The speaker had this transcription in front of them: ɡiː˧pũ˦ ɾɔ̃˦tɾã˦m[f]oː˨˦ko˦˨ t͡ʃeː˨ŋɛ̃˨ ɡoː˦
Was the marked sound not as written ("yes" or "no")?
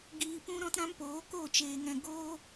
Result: yes